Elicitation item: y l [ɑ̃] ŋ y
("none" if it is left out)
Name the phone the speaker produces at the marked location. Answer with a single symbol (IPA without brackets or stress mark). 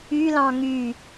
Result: ɑ̃